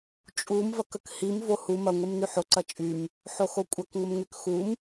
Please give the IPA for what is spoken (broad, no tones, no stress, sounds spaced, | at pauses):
t͡ʃʼ u m v ɐ k ə k h i m v o h u m ɐ ŋʷ i m n y ħ o ǀ ɐ t͡ʃʼ y m | ħ o x o kʷʼ ɐ k ŋʷ ə m ŋ y k x u m